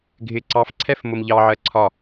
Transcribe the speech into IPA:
ɡʱ ɪ ǀ ɑ f ǀʰ ɛ f m ʊ m ʎ ɑ ʕ ɜ ǀʰ ɒ

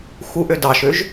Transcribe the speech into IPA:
x u ʔ ø d ɑ ʃ ø ʒ

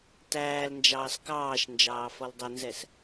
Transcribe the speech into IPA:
t æː l n d͡ʒ ɑː s k ɑː ʃ n d͡ʒ ɑː f ɔ l dˤ ə n z ɛ s

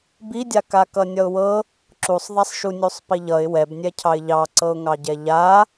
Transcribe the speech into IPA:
b i dʲ a k a k ʌ nʲ ʌ ʊ̯ w ɤ | ǁ u sˤ ðˤ a sˤ ʃ u nʲ u sˤ p i ʎ ʌ ɪ̯ w ɛ b nʲ ɛ cʰ ɑ ɪ̯ ʎ ɑ ǀ ɤ ʊ̯ ŋ ɑ ɟ ɛ ʎ a

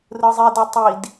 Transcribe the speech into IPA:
r ɯ zˤ i d ʌ tˤ i d

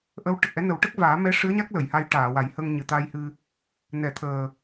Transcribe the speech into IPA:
ʔ ə˧˥ w ʈ ə˨˩ k̚ ʔ ɛ˧˥ n ə˨˩˦ w ʈ ə˦˥ k̚ v aː˨˩˦ m ɛ˧˥ ʂ ɨ˧˥ ə̯ ɲ a˦˥ k̚ l ə˨˩˨ j h a˧ j ʈ aː˨˩˨ w a˨˩˦ j h ə˧ ŋ ɲ ɨ˨˩ t̪ a˧ j h ɨ˧ | n ɛ˨˩˨ t̪ʰ əː˨˩

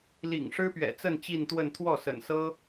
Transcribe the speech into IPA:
l ḭ˨˩ ŋ ʂ ɻ̩˥ p ɥ ɛ̰˨˩ t͡s ə˥˧ n t͡ɕ i˥˧ n t̪ w ə˥˧ n t̪ʰ w ɔ˥˩ s ə̰˨˩ n s ɤ˥

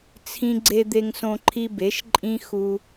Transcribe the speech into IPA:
t͡sʰ ĩ˧ ɡ͡ǀ e˧ d̪ e˧ ŋ s õ˧ ǃʰ i˧ b e˩˧ ʃ ǃʼ ĩ˧ x u˧

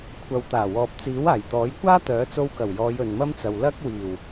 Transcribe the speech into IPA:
kʷʰ ɐ˨ w t̪ aː˨˩ w ɔː˨ p̚ t͡s iː˨˥ w aː˨˩ j t̪ ɔː˨˥ j kʷ aː˥ t̪ œː˨˥ t͡s o˧ w k ɐ˨˩ w j ɔː˨˧ j ɵ˨ n m ɐ˥ m t͡s ɐ˨ w l ɐ˥ k̚ w iː˨˩ w

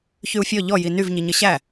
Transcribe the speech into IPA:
ç y u̯ fʲ ɔ ʎ ɔ j i n y v ɲ i ɲ ə ɕ æ

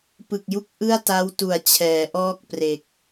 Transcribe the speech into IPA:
p ɯ˨˩ k̚ j u˦˥ k̚ ʔ ɯ˥˩ a̯ t a˦˥ w t u˨˩ a̯ t͡ɕʰ ɛː˩˦ ʔ ɔː˥˩ k̚ p r e˨˩ k̚

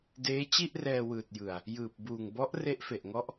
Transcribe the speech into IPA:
d eː˦˥ t͡ɕ i˥˩ ʔ r ɛː˧ w ɯː˨˩ t̚ j ɯ˨˩ a̯ | j ɯː˨˩ p̚ b uː˨˩ ŋ b ɔ˦˥ ʔ r e˦˥ ʔ f e˨˩ ʔ ŋ ɔ˦˥ ʔ

